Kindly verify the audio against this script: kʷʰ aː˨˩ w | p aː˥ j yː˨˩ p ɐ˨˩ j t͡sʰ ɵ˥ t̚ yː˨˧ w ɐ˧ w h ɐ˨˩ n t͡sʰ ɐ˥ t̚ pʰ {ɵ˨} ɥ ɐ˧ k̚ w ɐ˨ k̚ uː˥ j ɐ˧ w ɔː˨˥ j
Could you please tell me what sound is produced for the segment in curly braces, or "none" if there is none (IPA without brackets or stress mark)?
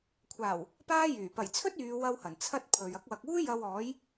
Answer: ɵ˨